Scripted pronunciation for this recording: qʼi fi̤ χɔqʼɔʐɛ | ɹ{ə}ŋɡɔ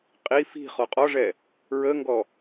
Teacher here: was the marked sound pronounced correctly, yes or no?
yes